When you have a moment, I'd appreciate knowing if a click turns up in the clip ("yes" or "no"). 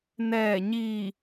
no